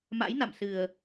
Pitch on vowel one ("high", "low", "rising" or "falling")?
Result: rising